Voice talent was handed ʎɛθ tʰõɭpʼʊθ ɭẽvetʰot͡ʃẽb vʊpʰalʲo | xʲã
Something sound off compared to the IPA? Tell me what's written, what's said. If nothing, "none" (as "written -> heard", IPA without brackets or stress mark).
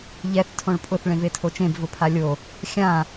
none